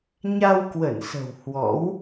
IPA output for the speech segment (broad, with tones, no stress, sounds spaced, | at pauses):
ɲ a˧ w k w ə˧˩ n s ə̤˨˩ w h w ɔ̰˧˥ w